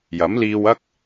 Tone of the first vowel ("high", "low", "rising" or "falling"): rising